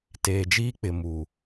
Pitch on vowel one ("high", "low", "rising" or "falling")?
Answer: low